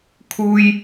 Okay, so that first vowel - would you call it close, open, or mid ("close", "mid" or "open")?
close